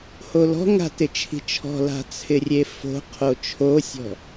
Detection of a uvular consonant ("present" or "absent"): present